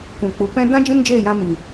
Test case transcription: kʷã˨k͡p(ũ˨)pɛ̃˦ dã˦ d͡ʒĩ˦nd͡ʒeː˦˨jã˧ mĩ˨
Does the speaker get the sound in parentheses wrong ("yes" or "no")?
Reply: yes